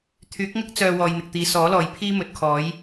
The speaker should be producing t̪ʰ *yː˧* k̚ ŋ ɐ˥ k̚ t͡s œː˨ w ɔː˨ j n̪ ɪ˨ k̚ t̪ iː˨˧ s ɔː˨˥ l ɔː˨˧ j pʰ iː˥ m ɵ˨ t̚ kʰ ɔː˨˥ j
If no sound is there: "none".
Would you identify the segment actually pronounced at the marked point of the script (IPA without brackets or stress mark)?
yː˨˥